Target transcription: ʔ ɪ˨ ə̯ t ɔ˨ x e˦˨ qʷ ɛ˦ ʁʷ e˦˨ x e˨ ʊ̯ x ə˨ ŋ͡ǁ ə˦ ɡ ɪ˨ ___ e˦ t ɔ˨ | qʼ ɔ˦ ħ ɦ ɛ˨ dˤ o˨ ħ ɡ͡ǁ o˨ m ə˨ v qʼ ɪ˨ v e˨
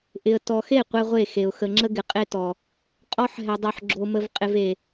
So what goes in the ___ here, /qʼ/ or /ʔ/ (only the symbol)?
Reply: qʼ